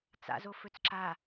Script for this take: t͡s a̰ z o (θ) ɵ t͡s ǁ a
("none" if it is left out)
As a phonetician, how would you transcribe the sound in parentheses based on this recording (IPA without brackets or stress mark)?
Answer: f